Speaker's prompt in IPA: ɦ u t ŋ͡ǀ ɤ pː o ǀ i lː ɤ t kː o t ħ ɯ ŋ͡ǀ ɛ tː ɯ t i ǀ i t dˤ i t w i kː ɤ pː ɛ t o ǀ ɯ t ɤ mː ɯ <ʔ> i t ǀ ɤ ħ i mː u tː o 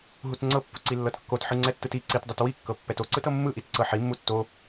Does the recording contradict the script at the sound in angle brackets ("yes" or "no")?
no